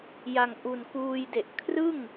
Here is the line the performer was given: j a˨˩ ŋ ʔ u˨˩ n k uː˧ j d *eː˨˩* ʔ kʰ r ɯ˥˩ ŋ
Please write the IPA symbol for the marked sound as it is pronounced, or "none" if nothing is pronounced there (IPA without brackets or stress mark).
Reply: e˨˩